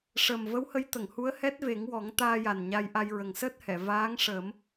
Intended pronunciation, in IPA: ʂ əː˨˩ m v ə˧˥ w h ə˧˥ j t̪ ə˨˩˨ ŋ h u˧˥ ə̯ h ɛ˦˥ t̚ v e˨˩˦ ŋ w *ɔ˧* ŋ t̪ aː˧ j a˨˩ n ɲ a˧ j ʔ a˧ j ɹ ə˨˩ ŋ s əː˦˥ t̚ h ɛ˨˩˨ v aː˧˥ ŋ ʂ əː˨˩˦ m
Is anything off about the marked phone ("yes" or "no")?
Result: yes